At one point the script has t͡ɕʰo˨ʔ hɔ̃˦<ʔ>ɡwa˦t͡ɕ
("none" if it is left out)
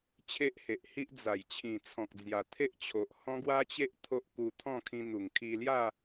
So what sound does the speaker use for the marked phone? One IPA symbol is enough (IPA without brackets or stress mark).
none